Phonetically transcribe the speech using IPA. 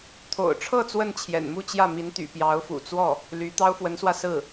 t̪ʰ o̰˨˩ ʊ̯ ʈ͡ʂʰ ɤ˥˧ t͡s w ə˥˩ n t͡ɕʰ j ɛ̰˨˩ n m u˥˧ t͡ɕ j ä˥˩ m i˧˥ n t̪ y̰˨˩ p j ɑ˧˥ ʊ̯ f ṵ˨˩ t͡s w ɔ˥˩ | l y˧˥ t̪ ɑ˥ ʊ̯ f w ə˧˥ n s w ä˧ s ɹ̩˥˩

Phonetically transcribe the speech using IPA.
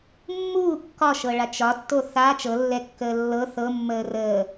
mː uː kː ɒ ʃ ɤ ɭ a t͡ʃ ɒ tː o θ a t͡ʃ ɤ lː ɛ kː əː lː ɤ θ ɤ mː əː r əː

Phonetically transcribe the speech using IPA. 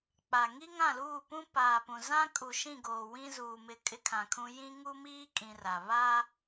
k͡p a˨ ŋ i˦ ŋ ã˦˨ l uː˦˨ p ũ˦ p aː˨ p ũ˨ z ã˦ kʼ u˨ ʃ ĩ˦˨ ɡ oː˨ w ĩ˦ z uː˨ m ɪ˨˦ kʼ ɪ˦ kʰ ã˨ kʰ ũ˦ j ĩ˦ ŋ u˦ m iː˦ kʼ ĩ˦ r a˨ β a˦

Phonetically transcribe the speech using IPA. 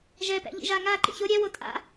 ʒ ɛ p ɛ̰ ʎ ḭ ʒ a ŋ a ǃ ḭ ç o ɾʲ ɛ w o tʼ a̰

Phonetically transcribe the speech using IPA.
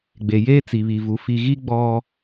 ɡ͡b e˨ j eː˦ t͡s i˨ β i˨ v u˨ f i˨ ɣ i˦ ɡ͡b ɔ˦

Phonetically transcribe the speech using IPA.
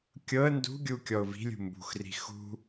kʲ ɤ ə̯ n d ṳ ɡʲ u kʲ ɔ ʊ̯ v i̤ lʲ ṳ m b ṳ x r i̤ x ṳ

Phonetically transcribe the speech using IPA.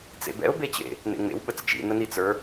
t͡s ḛ b ɛ̰ ʊ̯ b e t͡ɕ ḛ | n ḛ ŋ͡m ḛ w ɓ ə t͡s t͡ʃ ḭ n ə n i t͡s ə˞

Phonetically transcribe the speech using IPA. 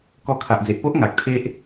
k ɔ˧ kʰ a˨ ʔ d͡z e˨ ʔ p o˦ ʔ ŋ a˨ k̚ t̪ʰ e˦ ʔ

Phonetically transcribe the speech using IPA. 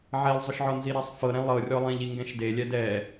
ʕ e lˠ zˤ ʊ ʃ ʕ ɔ n z i ɾ ɛ sˤ f ɤ ɾ ɛ̃ lˠ ɤ rʲ ɔ lˠ ẽ ʎ i ŋ ɡ ɛ̃ ʃ d e lʲ ɛ d ɛ

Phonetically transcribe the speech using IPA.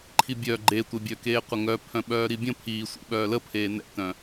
ǃʰ i bʲ œ ɡ͡ǃ e tʷ e bʲ œ k eː qʷ ə ŋ œ pʰ œ̃ ɓ œː ɾ i bʲ ə̃ pʰ iː sʷ ḭ ɓ œː l ə pʰ eː n ɛ̰ t œ̃

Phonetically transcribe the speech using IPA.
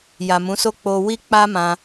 j a˨ m ũ˨˦ s o˦ k͡p o˧ w i˦ k͡p a˦ m ã˧

